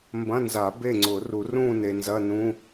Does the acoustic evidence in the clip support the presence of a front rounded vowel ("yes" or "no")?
no